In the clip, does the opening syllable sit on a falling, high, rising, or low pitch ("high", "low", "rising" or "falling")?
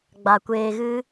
low